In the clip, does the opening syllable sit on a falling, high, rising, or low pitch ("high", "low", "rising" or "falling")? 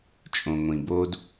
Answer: low